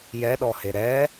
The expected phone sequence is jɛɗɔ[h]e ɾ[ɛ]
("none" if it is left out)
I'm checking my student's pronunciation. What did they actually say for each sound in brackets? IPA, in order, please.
h, ɛ

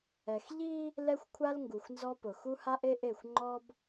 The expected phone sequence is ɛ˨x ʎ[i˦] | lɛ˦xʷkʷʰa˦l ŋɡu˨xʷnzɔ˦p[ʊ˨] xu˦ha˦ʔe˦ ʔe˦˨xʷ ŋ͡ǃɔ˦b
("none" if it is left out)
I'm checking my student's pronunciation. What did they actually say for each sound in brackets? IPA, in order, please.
i˦, ʊ˨

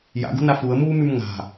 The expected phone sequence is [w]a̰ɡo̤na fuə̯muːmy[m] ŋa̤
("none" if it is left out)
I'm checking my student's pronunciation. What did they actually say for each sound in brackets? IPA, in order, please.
j, m

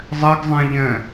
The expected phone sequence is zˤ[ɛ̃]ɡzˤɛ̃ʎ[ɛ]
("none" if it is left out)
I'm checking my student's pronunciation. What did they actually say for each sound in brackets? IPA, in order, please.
ɛ, ɛ̃

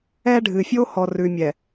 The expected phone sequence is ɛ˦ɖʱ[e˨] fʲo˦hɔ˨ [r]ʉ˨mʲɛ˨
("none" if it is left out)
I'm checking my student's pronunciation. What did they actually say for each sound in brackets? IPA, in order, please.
ɨ˨, r

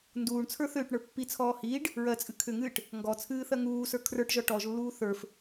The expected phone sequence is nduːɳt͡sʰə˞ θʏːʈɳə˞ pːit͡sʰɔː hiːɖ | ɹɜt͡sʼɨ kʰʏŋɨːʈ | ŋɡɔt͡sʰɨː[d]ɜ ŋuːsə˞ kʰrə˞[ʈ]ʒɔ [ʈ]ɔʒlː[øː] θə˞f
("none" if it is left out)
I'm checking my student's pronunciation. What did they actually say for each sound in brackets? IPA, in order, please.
θ, ʈ, ʈ, uː

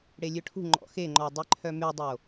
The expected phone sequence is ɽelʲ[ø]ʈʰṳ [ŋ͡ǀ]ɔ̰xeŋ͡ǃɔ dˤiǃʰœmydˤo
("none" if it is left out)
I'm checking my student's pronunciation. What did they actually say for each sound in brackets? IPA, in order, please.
ø, ŋ͡ǃ

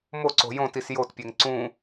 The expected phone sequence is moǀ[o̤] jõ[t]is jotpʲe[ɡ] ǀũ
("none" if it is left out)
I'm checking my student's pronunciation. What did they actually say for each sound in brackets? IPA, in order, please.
o̤, t, ŋ

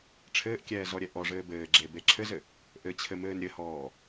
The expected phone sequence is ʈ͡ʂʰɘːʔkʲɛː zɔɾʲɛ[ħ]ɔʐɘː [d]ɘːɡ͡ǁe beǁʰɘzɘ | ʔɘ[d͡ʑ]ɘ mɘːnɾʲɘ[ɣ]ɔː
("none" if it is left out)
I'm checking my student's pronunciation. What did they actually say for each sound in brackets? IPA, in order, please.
ʔ, b, t͡ɕʰ, h

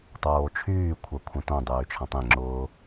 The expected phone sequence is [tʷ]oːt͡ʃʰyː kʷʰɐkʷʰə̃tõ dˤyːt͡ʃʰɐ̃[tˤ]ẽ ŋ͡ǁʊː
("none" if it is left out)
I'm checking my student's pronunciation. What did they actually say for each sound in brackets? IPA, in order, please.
tˤ, tˤ

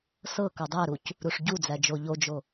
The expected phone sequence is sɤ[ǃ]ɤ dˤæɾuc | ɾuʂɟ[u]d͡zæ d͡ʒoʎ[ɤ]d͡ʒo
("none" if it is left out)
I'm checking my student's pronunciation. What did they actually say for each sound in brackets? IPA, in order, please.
k, u, o

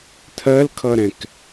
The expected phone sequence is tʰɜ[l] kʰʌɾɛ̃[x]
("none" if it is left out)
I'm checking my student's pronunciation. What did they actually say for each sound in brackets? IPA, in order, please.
l, k

